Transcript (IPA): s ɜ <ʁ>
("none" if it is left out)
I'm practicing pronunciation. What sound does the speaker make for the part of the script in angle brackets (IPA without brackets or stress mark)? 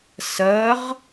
ʁ